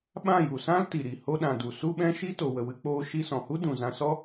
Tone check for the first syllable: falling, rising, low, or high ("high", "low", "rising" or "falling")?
falling